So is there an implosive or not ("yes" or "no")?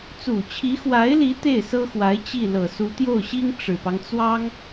no